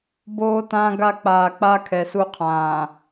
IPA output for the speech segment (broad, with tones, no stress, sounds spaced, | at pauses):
b oː˦ t ãː˦ ɡ a˦˨ k͡p aː˨ k͡p aː˦ kʰ ɛ˨ s u˦ qʰ ãː˨